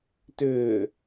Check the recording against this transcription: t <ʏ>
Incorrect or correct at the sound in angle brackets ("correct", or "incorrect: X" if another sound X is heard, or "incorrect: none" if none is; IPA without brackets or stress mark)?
correct